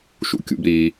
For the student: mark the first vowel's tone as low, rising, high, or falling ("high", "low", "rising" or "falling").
high